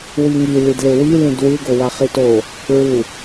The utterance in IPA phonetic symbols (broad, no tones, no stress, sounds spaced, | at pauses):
w i ŋ i l i d l e w i l ĩ d w ɯ ɡ o w a χ i t o | ɹ u